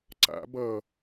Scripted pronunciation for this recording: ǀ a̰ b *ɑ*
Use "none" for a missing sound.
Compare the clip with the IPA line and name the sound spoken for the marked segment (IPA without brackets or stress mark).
ʌ